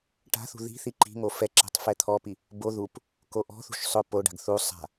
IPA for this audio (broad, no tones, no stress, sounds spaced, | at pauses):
ʈ a̤ θ ṳ ð i̤ θ i ǃ i̤ ŋ o f ɛ ǁ ɛ̤ tˤ f ɛ t̪ʰ ɔ p i | b o ð u p | k o ʔ ɔ̤ θ ṳ ʃ sˤ ʊ p o ɖ a̤ ɡ θ u sˤ a̤